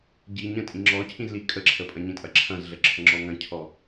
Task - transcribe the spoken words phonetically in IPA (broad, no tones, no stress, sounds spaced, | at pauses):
ɟ i ɲ ə̃ tʼ ĩ ŋ͡ǁ ɔ cʰ ĩ z l i kʼ ə ǁʰ ə pʼ ɐ̃ ɲ ĩ tʼ ɐ ǁʰ ɐ̃ z ɮ ə ǁʰ ə ŋ͡ǁ ɔ ŋ ɐ̃ cʰ ɔ